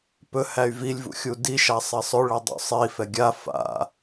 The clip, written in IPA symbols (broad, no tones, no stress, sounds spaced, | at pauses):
p ɵ h æ y̯ v i lʲ v ṵ xʲ u d i ʃ a sˤ ɛ sˤ ɵ ɭ ɛ dˤ ṵ sˤ i f ɛ ɡʲ a f a̰